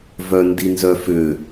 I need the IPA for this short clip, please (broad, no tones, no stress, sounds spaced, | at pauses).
v œ n d i n z œ f ʏ